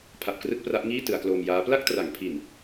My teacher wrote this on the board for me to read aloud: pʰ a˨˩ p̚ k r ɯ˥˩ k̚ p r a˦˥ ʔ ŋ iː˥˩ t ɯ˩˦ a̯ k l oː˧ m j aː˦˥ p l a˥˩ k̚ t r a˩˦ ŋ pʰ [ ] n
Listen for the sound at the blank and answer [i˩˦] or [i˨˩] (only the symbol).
i˨˩